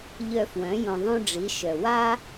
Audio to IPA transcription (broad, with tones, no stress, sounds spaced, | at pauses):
ʎ œ˧ f w œ̃˨˦ j õ˧ ðˤ õ˦ ɖ͡ʐ i˨˦ ʃ œ˨ w a˦